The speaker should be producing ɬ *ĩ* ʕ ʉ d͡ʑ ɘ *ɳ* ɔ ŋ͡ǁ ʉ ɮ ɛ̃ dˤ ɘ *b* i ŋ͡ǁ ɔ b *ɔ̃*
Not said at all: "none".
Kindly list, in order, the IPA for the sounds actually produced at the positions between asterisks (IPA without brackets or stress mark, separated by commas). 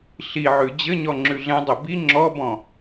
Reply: i, ɲ, b, ɔ̃